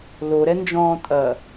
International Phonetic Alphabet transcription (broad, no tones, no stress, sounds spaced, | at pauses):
l o ɾ ɛ n d͡ʒ ɔ̃ː tʼ ɐ